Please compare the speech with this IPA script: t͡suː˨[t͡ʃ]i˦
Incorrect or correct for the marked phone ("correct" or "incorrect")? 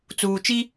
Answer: correct